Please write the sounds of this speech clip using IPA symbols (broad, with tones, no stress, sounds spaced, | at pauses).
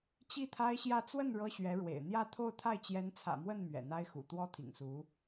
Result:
t͡ɕ i˥˩ t̪ʰ a˥ ɪ̯ ɕ j ä˥˧ t͡s w ə˥˩ n ɻ ɤ˥ ɕ ɥ ɛ˧˥ ɻ w ḛ˨˩ ɪ̯ n̪ j ä˥˧ t̪ʰ o˥˧ ʊ̯ t̪ʰ a˥˩ ɪ̯ t͡ɕ j ɛ˧˥ n t͡sʰ ä̰˨˩ m w ə˥˩ n m ɥ ɛ̰˨˩ n̪ a˥ ɪ̯ x ṵ˨˩ t̪ w ɔ˥ t̪ʰ ḭ˨˩ ŋ s u˧˥